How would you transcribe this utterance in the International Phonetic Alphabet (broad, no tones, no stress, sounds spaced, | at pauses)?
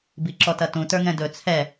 b i ǁ ɔ t ɐ t ũ t ə˞ ŋ ɛ̃ d ɵ t͡sʰ ɛ